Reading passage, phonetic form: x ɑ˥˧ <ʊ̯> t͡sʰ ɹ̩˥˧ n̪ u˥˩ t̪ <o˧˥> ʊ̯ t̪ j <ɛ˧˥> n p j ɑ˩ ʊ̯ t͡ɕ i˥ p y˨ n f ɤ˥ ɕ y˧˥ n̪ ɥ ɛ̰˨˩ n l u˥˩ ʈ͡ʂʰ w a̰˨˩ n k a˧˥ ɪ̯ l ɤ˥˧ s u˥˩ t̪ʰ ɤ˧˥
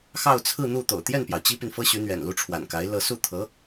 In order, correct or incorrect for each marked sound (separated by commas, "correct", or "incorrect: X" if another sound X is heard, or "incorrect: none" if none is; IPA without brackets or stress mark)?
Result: correct, incorrect: o̰˨˩, incorrect: ɛ˥˩